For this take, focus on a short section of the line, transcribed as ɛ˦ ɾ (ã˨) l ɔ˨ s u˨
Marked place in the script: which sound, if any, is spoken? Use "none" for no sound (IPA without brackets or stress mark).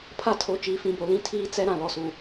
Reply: ã˨